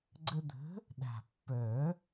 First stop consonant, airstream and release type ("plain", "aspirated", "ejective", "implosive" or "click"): click